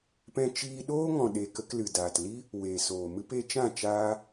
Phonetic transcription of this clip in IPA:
p ɛ̃˧ t͡ʃ iː˧ ɗ oː˦ ŋ ɔ̃˨ ɗ e˨ k ə˧ k l ɨ˨ d aː˨ t l i˦ | w eː˨ s oː˨ m ɨ˦ p e˧ t͡ʃ ã˦˨ t͡ʃ aː˧

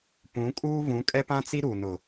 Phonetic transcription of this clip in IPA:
p ũ˨˦ kʼ uː˦ v ũ˨˦ kʼ ɛ˦ p ã˦ t͡s i˦ ɾ u˨ n ʊ˨

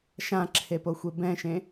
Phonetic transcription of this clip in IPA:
ʃ ã ǁʰ e p o xʷ e b ɛ̃ ʃ ẽ

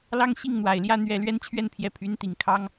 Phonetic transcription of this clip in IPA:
l ɑ˥˧ ŋ ɕ i˥˩ ŋ n̪ w a˨˩ ɪ̯ l j ä˥˧ n̪ ɥ ɛ˥˩ l ɥ ɛ˥ n t͡ɕʰ ɥ ɛ˥˩ n pʰ j ɛ˧˥ pʰ y˧˥ n t̪ i˨˩ ŋ kʰ ɑ˥ ŋ

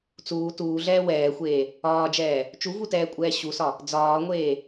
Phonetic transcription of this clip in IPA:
t͡s uː t uː ɮ ɛː w ɛː xʷ eː | ɒː d͡ʒ ɛː | t͡ʃ u v u t ɛː kʷʼ ɛː ɕ u s ɒ | d͡z ɒː ŋʷ eː

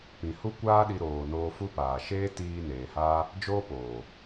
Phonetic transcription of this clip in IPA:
p ĩ˨ h u˦ kʷ aː˦ ɗ i˧ ɾ oː˨ n oː˧ f u˦ p aː˨ ʃ eː˦ t iː˧ n eː˨ h aː˦ | d͡ʒ oː˦ p oː˨

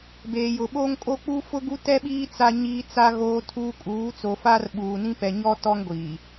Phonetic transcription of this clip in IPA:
b eː˨ j ʊ˨ ɓ oː˦ ŋ kʼ o˦ k͡p uː˦ f ʊ˦ ɡ u˦ t ɛ˦ ɓ iː˦ t͡s a˦ ɲ iː˦ t͡s a˦ ɣ oː˦ tʰ uː˦ kʼ uː˨˦ t͡s o˨ f aː˦ r ɓ uː˨ n ĩ˦ p ɛ˨ ɲ ɔ˦ t ɔ˦ ŋ ɡʷ iː˨

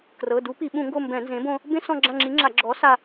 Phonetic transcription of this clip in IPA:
k r ɤ˩˧˩ d u˨˥ p i˧˩˧ ɓ ũ˧˩˧ ŋ ɡ o˦˨ m b ɛ̃˧˩˧ n z ẽ˨˥ b õ˦ | b ẽ˦ s ɔ̃˦˨ ɡ͡ǁ ã˦˨ ŋ͡ǁ i˨˥ ŋ͡ǁ a˧˩˧ ɡ͡ǁ ɔ˨˥ s a˦˨

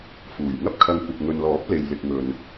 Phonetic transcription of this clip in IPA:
f uː˨˩ j ŋ ɐ˥ p̚ kʰ ɐ˧ ŋ kʷ ɐ˨ k̚ ŋ ɵ˨ n l ɔː˨˥ p̚ l e˨ j l ɪ˧ k̚ ŋ ɵ˧ n

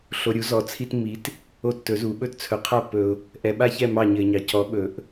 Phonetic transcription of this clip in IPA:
ɬ o˨ ɾʲ u˨˥ z ɔ˨ t͡sʰ i˦ t mː i˨˥ t | o˦˨ tː ɵ˨˩˦ z u˨˩˦ ɓ ɵ˦ t t͡sʰ ɵ˨ qʰ a˦ pː ɵ˨ ʊ̯ | ʔ ɛ˨ ɓ a˦ ç ɛ˦˨ m ɑ˦˨ ɲ ɘ˨ ɪ̯ ɲ ɑ˨ c ɔ˨˥ ɓ ɵ˨˩˦ ʔ

